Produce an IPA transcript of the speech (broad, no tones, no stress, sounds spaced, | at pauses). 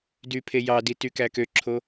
d y pʰ e j ɑ d i t y k æ k ø ǁʰ o